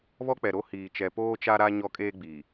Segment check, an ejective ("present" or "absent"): present